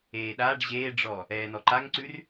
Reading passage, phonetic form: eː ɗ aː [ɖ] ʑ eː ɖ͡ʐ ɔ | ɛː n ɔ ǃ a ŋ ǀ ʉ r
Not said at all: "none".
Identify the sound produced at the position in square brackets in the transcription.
ɖ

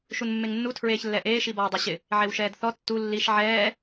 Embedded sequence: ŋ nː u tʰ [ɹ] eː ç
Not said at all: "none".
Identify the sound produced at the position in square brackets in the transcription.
ɹ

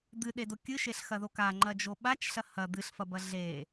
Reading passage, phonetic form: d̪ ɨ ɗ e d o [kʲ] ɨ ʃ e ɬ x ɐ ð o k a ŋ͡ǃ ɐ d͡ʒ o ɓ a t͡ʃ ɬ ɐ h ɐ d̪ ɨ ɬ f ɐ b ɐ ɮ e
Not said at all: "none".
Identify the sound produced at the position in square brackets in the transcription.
kʲ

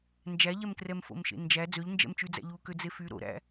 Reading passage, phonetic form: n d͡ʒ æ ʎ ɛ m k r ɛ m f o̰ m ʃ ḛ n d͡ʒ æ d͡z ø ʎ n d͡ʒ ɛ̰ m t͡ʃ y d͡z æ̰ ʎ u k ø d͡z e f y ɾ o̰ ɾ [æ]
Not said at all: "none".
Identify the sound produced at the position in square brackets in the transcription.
æ̰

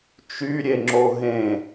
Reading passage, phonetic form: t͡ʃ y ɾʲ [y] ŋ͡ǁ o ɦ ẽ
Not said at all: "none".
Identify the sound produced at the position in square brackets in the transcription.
e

